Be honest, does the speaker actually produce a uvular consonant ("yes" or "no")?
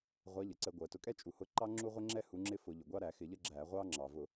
yes